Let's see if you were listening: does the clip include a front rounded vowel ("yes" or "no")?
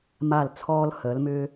yes